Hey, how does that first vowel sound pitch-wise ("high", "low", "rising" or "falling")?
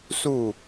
falling